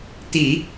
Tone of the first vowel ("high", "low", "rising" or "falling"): low